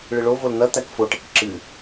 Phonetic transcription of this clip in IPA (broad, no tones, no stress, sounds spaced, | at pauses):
ɭ ɨ ɭ o v o l n̪ ɐ t̪ æ k f o ʈ e k ǁ ɨ